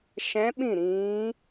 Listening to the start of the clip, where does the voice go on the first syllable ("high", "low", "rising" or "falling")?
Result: rising